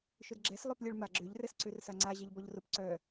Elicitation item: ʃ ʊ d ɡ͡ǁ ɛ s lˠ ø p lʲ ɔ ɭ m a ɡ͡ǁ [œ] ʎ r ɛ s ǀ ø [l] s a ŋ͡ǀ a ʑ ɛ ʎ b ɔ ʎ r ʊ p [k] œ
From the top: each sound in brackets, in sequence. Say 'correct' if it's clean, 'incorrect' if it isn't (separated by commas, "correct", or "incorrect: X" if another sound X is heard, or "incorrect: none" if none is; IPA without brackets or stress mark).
incorrect: ø, incorrect: r, incorrect: ǀ